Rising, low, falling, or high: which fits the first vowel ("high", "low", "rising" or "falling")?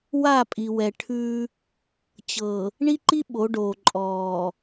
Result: falling